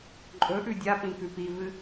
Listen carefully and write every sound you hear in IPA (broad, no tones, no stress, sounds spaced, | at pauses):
ǃʼ ɵ ʔ ʉ dʲ a p ĩ k ʉ p i v ɨ